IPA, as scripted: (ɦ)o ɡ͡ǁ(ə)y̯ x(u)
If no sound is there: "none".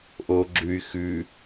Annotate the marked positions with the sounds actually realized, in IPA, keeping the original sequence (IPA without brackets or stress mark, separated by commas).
ʔ, ʉ, ʉ